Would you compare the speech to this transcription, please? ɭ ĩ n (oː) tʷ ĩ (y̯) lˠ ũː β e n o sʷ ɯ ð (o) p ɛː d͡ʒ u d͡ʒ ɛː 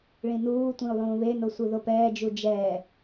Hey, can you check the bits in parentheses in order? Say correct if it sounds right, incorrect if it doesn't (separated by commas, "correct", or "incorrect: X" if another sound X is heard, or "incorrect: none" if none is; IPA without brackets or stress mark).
incorrect: uː, incorrect: u̯, correct